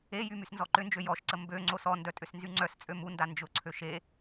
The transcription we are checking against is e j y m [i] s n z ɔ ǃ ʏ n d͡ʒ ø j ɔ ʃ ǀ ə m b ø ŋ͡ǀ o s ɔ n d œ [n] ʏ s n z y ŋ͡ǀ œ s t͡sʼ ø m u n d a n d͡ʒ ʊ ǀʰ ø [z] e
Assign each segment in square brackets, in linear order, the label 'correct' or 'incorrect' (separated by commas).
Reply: incorrect, incorrect, incorrect